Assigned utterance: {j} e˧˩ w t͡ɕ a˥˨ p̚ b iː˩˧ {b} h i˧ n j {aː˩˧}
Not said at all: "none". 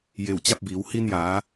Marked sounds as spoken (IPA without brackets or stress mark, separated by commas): j, w, aː˩˧